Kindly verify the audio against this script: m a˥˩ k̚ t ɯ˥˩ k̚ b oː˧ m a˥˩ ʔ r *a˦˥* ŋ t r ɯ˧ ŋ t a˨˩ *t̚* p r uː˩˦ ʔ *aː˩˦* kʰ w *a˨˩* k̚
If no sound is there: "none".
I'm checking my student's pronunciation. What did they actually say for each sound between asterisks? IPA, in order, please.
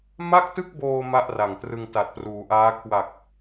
a˨˩, t̚, aː˦˥, a˨˩

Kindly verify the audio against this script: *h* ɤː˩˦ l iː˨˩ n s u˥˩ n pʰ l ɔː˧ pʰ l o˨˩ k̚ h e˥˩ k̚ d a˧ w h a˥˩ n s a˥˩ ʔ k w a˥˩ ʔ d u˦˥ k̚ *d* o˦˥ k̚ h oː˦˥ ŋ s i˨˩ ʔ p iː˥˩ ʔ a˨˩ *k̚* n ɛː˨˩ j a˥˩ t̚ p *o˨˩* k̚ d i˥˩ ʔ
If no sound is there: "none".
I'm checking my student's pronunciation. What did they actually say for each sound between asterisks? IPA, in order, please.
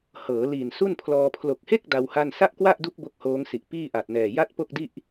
h, b, t̚, o˥˩

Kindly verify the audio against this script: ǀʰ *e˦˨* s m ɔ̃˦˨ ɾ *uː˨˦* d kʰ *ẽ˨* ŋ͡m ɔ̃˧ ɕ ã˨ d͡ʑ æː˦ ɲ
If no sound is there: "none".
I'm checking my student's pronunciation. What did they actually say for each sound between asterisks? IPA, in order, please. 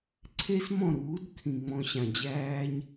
e˦, uː˨˦, ĩ˨

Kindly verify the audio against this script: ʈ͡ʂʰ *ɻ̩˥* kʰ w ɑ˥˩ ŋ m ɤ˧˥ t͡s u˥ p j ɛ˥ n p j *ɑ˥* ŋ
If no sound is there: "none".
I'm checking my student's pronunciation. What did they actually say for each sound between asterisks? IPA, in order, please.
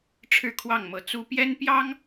ɻ̩˥˧, ɑ˥

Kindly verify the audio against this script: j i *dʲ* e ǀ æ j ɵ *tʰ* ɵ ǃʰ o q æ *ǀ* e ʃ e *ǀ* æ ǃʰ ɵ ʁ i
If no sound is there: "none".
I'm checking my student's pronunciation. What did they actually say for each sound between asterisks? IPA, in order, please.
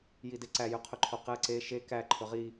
d, qʰ, ǀ, k

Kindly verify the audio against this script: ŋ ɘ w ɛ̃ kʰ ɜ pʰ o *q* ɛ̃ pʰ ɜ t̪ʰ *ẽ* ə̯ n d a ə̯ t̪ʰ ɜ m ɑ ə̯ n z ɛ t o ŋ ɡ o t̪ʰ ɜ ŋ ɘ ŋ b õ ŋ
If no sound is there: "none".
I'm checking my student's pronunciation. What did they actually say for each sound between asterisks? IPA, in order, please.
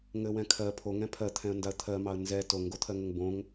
ŋ, ɛ̃

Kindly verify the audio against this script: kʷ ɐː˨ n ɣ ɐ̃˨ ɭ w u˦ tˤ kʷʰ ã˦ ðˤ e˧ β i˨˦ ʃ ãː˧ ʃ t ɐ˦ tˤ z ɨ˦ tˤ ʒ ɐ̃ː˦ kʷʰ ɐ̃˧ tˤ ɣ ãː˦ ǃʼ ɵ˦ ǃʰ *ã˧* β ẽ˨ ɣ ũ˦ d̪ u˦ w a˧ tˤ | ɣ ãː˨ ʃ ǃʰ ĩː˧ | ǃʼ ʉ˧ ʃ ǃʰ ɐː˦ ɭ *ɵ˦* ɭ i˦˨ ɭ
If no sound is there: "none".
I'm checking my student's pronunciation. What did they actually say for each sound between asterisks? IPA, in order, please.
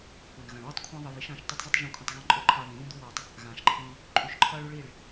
a˧, ɵ˦

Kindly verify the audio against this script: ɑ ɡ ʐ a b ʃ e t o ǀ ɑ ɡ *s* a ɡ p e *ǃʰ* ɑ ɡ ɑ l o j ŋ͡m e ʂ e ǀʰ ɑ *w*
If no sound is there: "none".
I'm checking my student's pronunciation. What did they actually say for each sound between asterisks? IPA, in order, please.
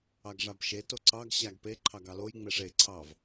ɕ, ǃʰ, v

